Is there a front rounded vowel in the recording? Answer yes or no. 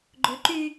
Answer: yes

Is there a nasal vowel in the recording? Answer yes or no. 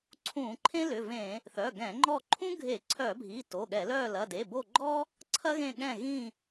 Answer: yes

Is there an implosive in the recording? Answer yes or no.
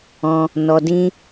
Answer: no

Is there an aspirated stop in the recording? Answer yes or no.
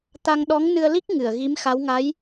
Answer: no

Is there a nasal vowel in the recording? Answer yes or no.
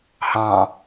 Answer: yes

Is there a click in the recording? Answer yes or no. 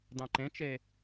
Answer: yes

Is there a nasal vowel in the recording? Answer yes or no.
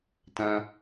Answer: yes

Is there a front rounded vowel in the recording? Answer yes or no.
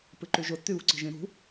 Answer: yes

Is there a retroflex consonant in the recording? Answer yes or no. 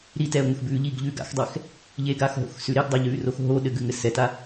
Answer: no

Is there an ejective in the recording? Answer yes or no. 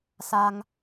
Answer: no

